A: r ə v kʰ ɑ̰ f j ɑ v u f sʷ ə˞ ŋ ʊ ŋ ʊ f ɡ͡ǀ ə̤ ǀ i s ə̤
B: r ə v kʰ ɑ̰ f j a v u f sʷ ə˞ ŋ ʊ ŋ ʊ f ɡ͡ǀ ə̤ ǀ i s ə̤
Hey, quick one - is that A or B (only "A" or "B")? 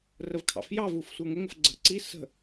A